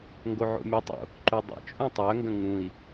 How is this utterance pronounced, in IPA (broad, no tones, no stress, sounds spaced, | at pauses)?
ŋ ɡ o ʕ o̰ mʲ o tˤ o̰ | ǃ u dˤ ə̰ t͡ʃʼ ũ tˤ œ ŋ ɡ ə̃ ŋ ũ i̯